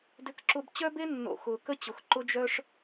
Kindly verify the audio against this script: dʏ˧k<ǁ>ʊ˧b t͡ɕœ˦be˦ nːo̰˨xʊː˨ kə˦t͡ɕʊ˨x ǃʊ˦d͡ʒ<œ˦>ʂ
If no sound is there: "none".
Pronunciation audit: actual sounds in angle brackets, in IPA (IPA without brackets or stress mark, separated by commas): ǁ, œ˦